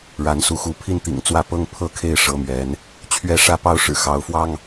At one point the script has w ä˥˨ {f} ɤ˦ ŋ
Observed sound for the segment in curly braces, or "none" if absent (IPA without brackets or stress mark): p